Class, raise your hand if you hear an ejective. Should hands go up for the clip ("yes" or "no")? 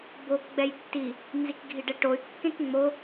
no